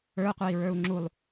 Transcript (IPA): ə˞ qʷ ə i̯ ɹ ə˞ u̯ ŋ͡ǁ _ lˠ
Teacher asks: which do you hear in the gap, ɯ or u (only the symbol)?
u